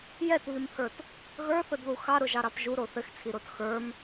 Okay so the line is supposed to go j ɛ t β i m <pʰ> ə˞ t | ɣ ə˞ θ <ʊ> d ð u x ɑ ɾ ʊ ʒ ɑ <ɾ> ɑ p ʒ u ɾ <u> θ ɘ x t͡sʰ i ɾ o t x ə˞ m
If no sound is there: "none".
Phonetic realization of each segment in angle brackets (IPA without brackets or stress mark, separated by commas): pʰ, ʊ, ɾ, o